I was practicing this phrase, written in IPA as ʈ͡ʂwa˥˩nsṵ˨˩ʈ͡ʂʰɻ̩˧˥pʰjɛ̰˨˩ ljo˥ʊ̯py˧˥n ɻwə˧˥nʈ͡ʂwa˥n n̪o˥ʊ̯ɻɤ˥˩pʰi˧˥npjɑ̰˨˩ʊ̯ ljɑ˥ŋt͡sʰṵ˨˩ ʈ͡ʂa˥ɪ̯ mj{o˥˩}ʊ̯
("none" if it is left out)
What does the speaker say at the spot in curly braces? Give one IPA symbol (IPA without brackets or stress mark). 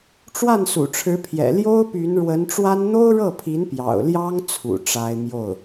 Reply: o˥˩